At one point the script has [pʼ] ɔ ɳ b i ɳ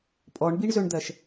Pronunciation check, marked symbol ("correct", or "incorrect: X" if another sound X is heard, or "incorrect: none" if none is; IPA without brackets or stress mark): correct